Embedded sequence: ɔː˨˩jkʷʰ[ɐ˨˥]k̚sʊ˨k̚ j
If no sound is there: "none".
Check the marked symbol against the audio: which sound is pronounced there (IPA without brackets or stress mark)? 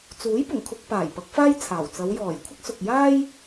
ɐ˥